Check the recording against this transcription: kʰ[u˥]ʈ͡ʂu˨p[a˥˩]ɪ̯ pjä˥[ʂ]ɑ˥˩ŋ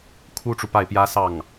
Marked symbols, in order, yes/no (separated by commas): yes, yes, no